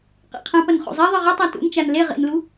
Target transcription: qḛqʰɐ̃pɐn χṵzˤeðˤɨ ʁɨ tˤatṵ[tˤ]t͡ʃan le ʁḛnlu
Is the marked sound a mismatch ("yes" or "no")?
yes